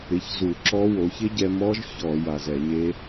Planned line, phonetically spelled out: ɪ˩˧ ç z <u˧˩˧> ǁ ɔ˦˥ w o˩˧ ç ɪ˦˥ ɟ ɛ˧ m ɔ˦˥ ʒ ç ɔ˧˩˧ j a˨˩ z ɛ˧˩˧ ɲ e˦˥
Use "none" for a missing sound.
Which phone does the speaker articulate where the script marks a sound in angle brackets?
u˧˩˧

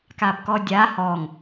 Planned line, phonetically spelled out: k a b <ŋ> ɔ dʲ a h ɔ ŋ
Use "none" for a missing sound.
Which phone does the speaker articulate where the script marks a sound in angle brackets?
k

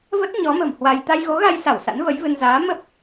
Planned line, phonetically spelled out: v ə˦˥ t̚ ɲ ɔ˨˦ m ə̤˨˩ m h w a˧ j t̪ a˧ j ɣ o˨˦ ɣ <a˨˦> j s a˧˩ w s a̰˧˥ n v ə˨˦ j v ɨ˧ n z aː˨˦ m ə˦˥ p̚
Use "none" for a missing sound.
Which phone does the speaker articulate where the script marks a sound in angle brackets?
a˧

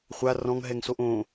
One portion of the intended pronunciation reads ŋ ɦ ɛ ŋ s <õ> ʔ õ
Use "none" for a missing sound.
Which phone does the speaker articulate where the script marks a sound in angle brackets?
o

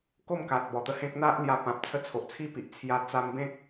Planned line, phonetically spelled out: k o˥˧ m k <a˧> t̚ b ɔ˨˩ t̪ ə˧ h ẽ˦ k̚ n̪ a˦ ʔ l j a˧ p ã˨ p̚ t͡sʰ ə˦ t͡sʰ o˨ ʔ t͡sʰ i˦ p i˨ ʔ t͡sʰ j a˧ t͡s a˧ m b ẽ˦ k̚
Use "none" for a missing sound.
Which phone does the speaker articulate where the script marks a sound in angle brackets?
a˨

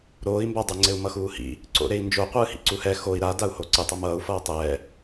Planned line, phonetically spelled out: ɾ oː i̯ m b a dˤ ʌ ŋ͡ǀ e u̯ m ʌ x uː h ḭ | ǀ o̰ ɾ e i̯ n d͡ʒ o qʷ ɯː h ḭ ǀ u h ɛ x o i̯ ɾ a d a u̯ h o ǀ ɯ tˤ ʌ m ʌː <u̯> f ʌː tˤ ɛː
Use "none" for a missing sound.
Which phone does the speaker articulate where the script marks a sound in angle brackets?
u̯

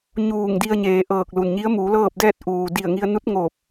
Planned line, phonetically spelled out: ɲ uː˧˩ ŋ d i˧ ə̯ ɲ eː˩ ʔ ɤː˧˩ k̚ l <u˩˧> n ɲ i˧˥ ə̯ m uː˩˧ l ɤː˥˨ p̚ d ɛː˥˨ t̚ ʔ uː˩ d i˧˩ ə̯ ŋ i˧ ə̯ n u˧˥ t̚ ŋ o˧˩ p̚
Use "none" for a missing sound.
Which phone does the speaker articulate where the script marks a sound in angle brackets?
u˩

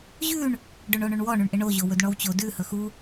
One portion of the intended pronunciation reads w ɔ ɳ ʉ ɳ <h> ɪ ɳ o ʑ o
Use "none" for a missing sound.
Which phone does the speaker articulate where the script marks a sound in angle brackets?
ʔ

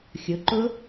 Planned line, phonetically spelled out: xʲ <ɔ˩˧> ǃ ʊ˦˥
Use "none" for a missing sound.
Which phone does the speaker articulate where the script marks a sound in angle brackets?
ʊ˩˧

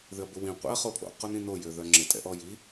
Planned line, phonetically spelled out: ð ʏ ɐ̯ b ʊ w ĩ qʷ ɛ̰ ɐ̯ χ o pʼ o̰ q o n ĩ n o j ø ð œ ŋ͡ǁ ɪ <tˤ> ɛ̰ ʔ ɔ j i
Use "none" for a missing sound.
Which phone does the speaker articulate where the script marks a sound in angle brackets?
tʼ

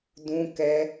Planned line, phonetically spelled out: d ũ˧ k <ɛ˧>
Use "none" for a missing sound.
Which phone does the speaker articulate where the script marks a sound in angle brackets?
ɛ˧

